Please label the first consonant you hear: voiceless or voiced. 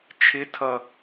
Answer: voiceless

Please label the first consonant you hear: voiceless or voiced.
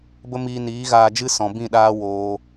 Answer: voiced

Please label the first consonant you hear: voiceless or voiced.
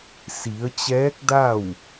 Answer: voiceless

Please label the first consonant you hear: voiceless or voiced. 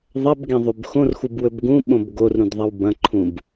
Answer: voiced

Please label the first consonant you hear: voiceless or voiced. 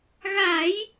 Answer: voiced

